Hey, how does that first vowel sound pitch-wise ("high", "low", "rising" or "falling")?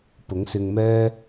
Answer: rising